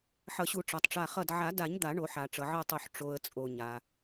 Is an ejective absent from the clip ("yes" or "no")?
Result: no